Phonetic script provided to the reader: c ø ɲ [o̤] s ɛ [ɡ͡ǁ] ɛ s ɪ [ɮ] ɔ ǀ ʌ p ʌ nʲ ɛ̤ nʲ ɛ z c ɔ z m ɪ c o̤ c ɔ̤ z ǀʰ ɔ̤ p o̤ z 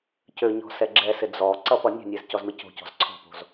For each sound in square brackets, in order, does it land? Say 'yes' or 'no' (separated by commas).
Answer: no, yes, no